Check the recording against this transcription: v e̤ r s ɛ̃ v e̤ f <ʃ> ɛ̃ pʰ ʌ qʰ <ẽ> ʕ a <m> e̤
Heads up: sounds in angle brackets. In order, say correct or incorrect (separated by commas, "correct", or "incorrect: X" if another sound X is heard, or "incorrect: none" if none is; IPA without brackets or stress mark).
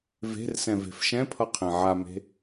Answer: correct, correct, correct